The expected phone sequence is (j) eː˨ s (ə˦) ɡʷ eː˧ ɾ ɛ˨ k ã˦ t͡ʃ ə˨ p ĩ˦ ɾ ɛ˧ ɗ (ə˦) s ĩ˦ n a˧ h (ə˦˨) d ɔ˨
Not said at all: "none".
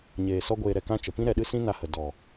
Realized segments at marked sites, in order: ɲ, ɔ˦, ɨ˦, ə˨

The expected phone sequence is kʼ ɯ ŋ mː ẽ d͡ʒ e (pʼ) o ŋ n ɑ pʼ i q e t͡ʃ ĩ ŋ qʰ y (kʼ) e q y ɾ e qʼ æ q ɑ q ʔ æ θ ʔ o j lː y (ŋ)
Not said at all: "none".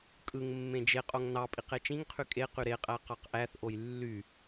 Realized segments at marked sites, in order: qʼ, kʼ, none

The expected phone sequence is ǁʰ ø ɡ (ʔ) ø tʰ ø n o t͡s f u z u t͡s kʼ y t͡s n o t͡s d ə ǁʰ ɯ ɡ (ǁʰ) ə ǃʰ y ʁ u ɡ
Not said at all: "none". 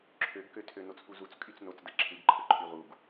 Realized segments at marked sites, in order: k, ǃʰ

